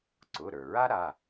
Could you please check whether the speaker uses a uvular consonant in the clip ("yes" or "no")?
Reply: no